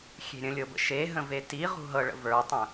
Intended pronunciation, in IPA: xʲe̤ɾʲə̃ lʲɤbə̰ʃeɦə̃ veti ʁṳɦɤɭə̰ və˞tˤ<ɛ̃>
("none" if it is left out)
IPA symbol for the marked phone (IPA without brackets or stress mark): ə̃